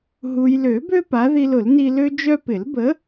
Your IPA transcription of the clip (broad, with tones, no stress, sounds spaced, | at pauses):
ɦ u˨ j l ø˨˩˦ b ø˦ p a˨˥ ð i˦ l ʊ˨˩˦ l n i˦ l ø˦ d͡ʒ œ˦ p ɪ˨˩˦ l b ə˨˥